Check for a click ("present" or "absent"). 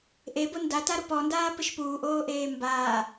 absent